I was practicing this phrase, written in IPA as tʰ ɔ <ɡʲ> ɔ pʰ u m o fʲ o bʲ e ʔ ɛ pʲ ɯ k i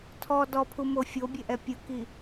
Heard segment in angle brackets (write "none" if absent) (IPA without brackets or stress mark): d